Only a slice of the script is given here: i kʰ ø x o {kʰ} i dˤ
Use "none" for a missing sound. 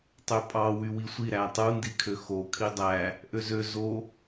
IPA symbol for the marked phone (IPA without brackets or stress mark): kʰ